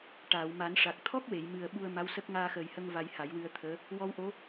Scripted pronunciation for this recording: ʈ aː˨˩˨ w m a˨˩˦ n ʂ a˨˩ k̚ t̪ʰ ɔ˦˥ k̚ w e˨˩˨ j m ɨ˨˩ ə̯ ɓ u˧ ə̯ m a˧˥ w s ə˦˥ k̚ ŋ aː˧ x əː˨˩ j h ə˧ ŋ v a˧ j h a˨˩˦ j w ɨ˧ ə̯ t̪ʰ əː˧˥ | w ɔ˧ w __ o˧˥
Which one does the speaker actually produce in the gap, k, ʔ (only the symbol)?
ʔ